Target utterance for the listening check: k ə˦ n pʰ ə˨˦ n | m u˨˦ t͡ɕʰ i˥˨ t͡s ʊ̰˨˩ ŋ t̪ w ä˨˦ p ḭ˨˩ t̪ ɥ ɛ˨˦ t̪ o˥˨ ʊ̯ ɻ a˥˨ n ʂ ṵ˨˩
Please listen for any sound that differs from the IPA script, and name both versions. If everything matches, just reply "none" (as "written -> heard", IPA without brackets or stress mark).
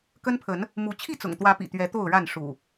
none